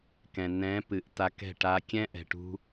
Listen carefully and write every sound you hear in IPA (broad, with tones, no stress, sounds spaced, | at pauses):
k ɛ̃˨ n ɛ̃˨˦ p ɨ˨ ʔ t a˧ k ɛ̤˦˨ ʈ a˧ kʲ ɛ̃˦ ʔ ɛ̤˨ ʈ ṳ˧